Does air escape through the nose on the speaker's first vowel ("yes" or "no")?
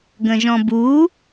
yes